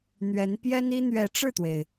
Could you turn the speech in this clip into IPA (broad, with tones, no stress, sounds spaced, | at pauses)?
n̪ ɥ ɛ˧˥ n p j ɛ˥ n i˥ n̪ ɥ ɛ˧˥ ʈ͡ʂ ɻ̩˥˩ t̪ w e˩ ɪ̯